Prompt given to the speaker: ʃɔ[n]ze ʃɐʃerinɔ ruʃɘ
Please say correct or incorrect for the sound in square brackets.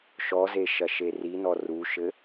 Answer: incorrect